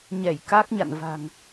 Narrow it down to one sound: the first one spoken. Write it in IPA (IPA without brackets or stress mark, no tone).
ɲ